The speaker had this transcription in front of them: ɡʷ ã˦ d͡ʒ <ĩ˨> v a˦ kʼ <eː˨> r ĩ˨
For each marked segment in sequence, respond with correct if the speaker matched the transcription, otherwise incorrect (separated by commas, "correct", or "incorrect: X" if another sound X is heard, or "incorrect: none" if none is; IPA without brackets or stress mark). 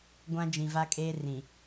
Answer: correct, incorrect: eː˦